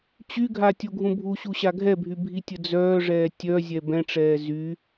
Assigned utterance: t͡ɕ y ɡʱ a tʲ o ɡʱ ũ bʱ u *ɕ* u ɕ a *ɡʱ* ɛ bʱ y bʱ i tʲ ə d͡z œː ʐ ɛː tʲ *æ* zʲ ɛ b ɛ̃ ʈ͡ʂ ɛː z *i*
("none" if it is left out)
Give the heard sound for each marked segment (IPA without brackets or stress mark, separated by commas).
ɕ, ɡʱ, œ, y